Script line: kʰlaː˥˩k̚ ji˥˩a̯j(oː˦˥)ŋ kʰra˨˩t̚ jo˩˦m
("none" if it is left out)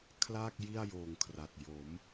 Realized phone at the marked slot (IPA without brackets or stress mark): oː˨˩